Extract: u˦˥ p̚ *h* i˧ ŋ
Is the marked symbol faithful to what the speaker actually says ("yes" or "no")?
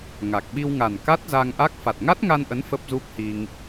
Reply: yes